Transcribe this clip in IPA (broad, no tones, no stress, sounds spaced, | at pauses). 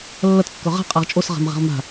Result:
lː ɐ t kː ɵ ʁ a̤ qʼ a ʁ t͡ʃʼ o s ʁ a̤ m ʁ e̤ ʁ m a̤